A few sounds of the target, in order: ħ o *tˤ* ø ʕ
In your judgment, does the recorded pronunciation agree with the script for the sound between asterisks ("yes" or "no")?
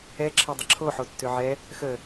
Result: no